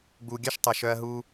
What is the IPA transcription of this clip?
ɡ͡b u˨ ɡʲ œ˦ ʃ tˤ ɐ˨ ʃ œ˦ ɐ̯ ɦ uː˦

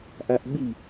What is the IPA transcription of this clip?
ʔ a ʔ ɓ i

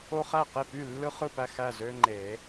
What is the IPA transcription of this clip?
o˦ χ æ˥˩ q e˥˩ p y˥˩ lː ɯ˦ χ ɯ˥˩ p æ˥˩ x æ˥˩ z ø˦ ŋ͡ǃ e˨˩˦

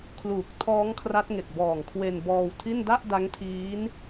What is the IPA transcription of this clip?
kʰ l uː˨˩ k̚ tʰ ɔː˦˥ ŋ kʰ r a˦˥ t̚ ŋ e˨˩ k̚ b ɔː˨˩ ŋ kʰ w e˧ n b ɔː˧ w tʰ i˥˩ n d a˥˩ ʔ d a˦˥ ŋ tʰ iː˦˥ n

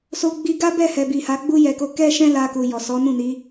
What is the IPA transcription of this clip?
s o˧ ɡ͡b i˧ ɡ a˦ b ɛ˦˨ h ɛ˨ b i˨ h a˨˦ ɡ͡b u˦ j ɛ˧ k o˧ k ɛ˦ ʃ ɛ̃˦ l a˧ k u˨ j ɔ˨ s ɔ˨˦ n ũ˦˨ n i˨˦

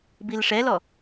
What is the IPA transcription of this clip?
b i l ʂ ɛ l ɔ

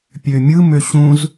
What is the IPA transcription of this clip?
pʲ ø mʲ ɯ m ø ɕ ũ z

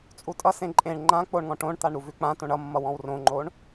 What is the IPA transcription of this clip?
t͡sʼ u tʼ ʌ s ẽ ǃʼ ẽ ɳ ŋ͡ǃ ã k͡p o ɳ ŋ ɔ̃ ʈ õ ɳ t̪ a ɳ ɾ u v ʉ k͡p ã t õ ɳ ʌ mː ʌ w ɔ̃ w r õ ŋ͡ǃ o ɳ

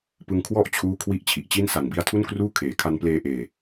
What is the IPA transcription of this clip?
p ɯ˧ ŋ kʰ w ɔ˥˩ ʔ t͡ɕʰ uː˦˥ kʰ w i˥˩ ʔ t͡ɕʰ i˨˩ ʔ t͡ɕ i˥˩ n s a˨˩ n b i˦˥ a̯ tʰ u˥˩ n k r uː˥˩ kʰ eː˩˦ kʰ a˧ n p l eː˧ ʔ eː˨˩

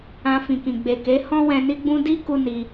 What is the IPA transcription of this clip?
ã˧ f ĩ˨ k ĩ˨ ɡ͡b e˨ k e˨˦ h ɔ̃˦ w ɛ̃˧ n i˦ ɡ͡b ũ˦ d i˦ k u˧ n i˧

